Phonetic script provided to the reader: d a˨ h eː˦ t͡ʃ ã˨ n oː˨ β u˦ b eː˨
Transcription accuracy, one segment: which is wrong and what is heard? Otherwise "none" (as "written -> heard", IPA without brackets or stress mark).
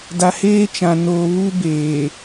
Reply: none